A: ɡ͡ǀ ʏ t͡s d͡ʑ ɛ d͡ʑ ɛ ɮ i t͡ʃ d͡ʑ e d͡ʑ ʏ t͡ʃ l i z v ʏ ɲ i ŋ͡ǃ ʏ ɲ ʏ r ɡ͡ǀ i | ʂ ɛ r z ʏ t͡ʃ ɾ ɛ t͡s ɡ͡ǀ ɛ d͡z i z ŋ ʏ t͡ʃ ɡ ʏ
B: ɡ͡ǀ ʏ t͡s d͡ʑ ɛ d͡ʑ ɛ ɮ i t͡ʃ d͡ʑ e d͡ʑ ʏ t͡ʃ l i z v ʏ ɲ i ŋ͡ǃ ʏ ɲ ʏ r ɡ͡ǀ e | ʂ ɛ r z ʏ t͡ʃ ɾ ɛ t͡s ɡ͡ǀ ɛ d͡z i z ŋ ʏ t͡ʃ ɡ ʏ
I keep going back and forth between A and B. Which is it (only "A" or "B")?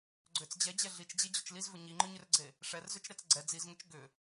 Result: B